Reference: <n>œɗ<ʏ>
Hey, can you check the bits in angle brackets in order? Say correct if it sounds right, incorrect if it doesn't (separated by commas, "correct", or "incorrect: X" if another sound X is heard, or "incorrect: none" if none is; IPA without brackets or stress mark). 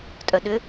incorrect: tʼ, correct